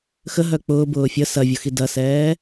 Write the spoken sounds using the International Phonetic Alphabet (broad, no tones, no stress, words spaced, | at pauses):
xə ɦœk͡pʊː bʊːfʲə sɐvʲʊxi dɐsɛː